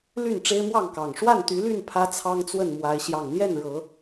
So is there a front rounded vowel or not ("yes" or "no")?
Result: yes